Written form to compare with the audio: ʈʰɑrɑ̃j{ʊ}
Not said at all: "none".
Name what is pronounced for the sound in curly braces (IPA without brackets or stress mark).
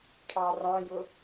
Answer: ʊ